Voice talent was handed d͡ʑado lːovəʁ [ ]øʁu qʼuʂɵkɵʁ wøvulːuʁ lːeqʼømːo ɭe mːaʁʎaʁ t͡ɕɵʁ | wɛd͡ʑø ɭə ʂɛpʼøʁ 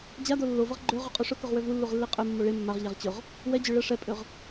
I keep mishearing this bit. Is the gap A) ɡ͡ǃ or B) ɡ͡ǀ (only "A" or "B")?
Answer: A